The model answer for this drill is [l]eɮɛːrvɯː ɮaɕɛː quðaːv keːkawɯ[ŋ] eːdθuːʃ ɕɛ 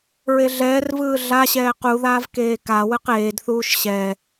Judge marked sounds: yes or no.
no, no

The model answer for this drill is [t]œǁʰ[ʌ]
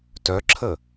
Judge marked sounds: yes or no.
yes, no

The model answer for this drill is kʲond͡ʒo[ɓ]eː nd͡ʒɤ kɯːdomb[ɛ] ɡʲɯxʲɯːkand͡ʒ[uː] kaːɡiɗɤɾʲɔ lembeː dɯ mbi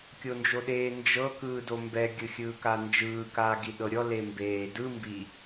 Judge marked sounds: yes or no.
no, yes, no

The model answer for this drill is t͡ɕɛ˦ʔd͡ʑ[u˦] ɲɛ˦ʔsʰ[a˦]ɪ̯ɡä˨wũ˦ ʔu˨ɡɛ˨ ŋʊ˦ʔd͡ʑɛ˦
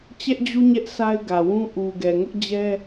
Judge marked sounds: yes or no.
yes, yes

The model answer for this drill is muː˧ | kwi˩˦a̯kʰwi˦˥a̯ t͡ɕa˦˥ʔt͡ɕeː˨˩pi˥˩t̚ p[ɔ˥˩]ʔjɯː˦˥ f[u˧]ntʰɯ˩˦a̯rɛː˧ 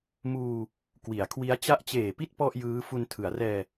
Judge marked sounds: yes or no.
yes, yes

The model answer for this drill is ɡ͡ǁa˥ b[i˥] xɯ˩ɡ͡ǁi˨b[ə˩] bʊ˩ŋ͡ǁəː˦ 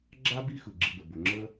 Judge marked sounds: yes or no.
no, yes

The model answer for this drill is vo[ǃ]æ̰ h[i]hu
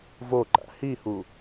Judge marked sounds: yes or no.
yes, yes

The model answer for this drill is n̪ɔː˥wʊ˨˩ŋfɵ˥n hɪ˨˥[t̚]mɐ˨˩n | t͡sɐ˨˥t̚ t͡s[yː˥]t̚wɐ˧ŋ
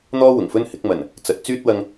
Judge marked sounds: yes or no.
no, yes

